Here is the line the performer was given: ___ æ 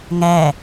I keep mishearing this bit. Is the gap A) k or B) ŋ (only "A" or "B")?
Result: B